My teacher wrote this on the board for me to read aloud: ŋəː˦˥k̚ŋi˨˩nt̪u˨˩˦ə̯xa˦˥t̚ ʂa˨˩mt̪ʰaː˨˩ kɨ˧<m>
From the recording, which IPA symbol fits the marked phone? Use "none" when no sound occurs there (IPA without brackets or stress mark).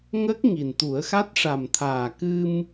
m